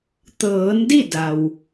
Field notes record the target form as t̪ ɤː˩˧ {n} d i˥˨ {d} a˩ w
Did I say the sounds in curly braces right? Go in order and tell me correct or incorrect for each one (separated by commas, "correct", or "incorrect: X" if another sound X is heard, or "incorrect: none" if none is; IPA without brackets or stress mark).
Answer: correct, correct